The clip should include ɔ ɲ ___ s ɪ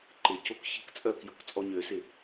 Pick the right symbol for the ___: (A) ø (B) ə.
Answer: A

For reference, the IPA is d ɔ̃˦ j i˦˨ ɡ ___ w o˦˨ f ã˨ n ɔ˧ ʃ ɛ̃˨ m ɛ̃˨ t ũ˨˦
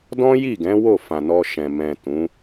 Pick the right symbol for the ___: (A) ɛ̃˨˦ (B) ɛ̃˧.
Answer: A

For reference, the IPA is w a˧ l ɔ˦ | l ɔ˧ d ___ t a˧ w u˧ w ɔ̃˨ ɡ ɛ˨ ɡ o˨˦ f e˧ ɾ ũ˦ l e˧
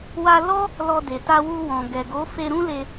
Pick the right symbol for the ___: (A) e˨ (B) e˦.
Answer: A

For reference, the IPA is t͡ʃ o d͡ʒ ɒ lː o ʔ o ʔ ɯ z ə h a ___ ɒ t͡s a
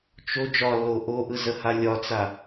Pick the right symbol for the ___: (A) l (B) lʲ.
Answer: B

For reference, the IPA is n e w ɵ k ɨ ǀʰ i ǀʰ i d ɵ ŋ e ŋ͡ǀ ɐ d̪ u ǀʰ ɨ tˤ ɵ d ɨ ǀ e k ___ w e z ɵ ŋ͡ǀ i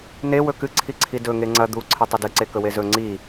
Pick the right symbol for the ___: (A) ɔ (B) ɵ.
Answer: B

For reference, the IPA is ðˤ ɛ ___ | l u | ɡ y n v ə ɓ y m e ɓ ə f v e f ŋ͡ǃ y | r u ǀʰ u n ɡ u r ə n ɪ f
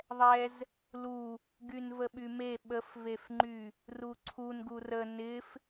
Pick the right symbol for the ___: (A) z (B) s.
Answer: A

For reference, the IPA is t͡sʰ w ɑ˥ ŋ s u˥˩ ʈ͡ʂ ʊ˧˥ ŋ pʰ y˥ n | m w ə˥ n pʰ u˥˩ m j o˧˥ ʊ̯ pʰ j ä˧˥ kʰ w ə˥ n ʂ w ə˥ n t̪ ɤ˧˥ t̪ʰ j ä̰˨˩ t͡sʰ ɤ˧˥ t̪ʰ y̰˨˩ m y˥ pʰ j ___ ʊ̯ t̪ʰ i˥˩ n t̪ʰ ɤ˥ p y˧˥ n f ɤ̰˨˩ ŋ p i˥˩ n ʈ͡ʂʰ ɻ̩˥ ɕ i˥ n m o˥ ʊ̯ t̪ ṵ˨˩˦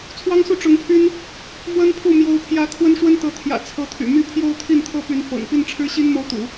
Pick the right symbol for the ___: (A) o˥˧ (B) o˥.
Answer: A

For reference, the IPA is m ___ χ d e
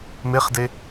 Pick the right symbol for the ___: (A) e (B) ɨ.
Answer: A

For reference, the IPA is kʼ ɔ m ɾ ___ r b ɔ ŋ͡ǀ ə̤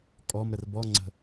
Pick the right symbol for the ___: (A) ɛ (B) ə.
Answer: B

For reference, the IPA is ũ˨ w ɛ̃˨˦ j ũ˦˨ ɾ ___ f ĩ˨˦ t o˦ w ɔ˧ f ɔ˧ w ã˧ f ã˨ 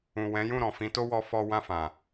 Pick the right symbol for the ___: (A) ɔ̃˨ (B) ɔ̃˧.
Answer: A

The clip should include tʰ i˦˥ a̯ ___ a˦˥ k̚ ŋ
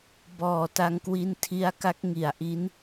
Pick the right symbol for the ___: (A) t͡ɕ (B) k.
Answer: B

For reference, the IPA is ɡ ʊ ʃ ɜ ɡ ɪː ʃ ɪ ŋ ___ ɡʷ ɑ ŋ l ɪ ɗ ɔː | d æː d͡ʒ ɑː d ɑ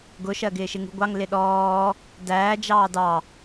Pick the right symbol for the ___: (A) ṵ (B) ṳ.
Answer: B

